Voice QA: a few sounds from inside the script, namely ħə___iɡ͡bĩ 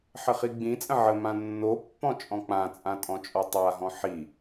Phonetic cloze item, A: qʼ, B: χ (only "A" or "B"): B